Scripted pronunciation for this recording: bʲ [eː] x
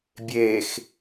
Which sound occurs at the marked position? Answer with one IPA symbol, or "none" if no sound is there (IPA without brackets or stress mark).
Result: eː